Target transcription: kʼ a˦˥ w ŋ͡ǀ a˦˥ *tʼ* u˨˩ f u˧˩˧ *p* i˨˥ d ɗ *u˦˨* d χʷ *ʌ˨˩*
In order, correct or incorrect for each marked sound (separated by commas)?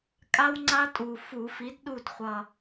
correct, incorrect, correct, correct